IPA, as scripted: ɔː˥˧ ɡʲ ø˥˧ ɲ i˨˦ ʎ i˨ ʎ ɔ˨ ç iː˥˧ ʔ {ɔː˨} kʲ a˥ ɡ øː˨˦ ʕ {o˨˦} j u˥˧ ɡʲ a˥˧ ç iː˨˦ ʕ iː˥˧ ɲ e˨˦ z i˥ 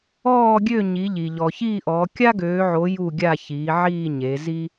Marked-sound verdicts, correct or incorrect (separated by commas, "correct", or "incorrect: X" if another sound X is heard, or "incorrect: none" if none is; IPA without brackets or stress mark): incorrect: ɔː˨˦, correct